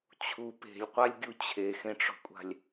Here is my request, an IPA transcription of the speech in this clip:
t͡ɕʰ u p e̤ lʲ qʷ a lʲ ɡʲ u t͡ɕʰ e x ẽ ʈ͡ʂ ɔ̤ kʷʼ a̤ lʲ

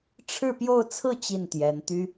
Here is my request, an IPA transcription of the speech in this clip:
ʈ͡ʂʰ ɻ̩˥˧ p j o˥˧ ʊ̯ t͡sʰ ɹ̩˥˧ t͡ɕ i˥˩ n t̪ j ɛ˧˥ n t̪ y˥

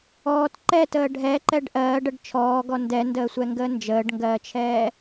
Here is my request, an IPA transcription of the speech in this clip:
ɔː t ǃ ɛ t əː ɖʱ ɛ ǃ ɛ ɖ ʔ ɜː ɖ ə ɖ t͡ʃʰ ɔː ɡ ɔ n d ɛ n d əː sʷ ɛ ŋ ɡ əː n d͡ʒ əː ɖ ŋ ɡ ɜː t͡ʃʰ ɛː

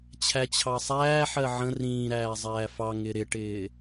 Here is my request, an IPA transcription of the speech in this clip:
t͡ɕʰ æ t͡ɕʰ ɑ sˤ æː ħ ɜ ʕ ə̃ r ĩː ɾ æː zˤ æː f ɑ ŋ ɪ ɾ ɪ ʈ ɪː

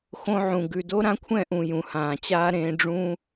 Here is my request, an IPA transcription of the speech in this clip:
x õ˧ ʕ ũ˨ ɡ ʉ˨ d o˦ ɾ ã˦ kʷʰ ɛ̃˦˨ ʔ ũ˨ j ũ˨ h ãː˨ t͡ɕ aː˦ ɾ ẽː˧ ɖ͡ʐ ũ˦

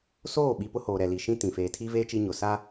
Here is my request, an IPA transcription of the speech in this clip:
s oː˦˨ ɓ i˨ p ʊ˦ h oː˨ ɾ ɛ˨ l i˨ ʃ ĩ˦ t ĩ˨ f eː˨ tʰ i˦ v eː˦ t͡ʃ i˦ ɲ ʊ˨ s a˦

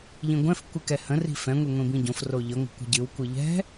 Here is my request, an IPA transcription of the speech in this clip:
ʎ ĩ ɡʷ ɛ̃ f kʷ ɨ k ɛ h ə̃ r i̤ f ɛ̃ ŋʷ i ŋʷ ĩ b ĩ ɟ õ f r o ʎ ə ŋʷ ə̤ kʷ ə̤ ɟ ɨ w kʷ ɨ ʎ ɛ̤

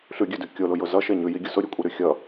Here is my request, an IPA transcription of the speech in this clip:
ɬ ʉ ɡʲ ʉ d ʉ kʲ o l ʊ j ʊ z ʌ ʃ e ɲ ʉ j i ɡʲ ʊ s ʊ ɾʲ ʉ kʷʼ e ɾ ʉ xʲ ʌ

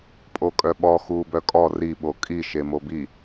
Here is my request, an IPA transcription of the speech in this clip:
pʼ o kʼ œ ɓ ɔ x uː b œ kʼ ɔ r i ɓ o kʼ i ʃ e m o b i

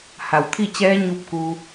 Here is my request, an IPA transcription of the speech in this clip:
h a˩ w t̪ʰ i˥˨ t͡ɕ ɛː˧˥ ɲ u˧˥ p̚ k u˧

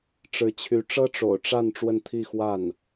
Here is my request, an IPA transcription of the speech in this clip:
ʈ͡ʂ ɻ̩˧˥ t͡ɕʰ y˧˥ ʈ͡ʂ ɤ˥ ʈ͡ʂ o̰˨˩ ʊ̯ ʈ͡ʂ a˥˧ n ʈ͡ʂ w ə˥˧ n t̪ʰ i˥˧ x w a˥˩ n

